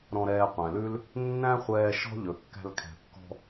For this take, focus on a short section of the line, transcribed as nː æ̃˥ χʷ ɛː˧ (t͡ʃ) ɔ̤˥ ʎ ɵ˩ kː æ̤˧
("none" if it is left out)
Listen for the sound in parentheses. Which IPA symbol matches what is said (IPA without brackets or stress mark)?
ʃ